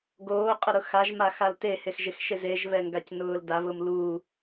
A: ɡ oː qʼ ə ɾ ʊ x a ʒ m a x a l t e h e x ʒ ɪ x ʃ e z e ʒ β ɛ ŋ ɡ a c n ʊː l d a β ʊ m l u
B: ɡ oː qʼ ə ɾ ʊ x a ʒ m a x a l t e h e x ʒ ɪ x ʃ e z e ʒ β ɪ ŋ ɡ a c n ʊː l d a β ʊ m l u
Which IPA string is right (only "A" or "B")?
A